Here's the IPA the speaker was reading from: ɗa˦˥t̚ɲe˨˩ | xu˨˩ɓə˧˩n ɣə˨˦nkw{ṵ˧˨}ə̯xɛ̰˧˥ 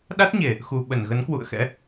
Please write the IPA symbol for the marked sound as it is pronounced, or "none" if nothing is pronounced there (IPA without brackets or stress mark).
ṵ˧˨